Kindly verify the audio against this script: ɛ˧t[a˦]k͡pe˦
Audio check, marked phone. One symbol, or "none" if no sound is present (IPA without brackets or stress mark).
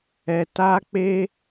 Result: a˦